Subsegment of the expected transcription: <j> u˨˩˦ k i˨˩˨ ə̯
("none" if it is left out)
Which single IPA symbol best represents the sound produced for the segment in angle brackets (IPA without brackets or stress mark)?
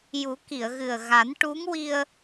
j